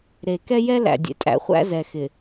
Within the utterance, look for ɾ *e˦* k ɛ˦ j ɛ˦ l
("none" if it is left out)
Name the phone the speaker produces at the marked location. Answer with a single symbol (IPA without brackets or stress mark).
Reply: e˨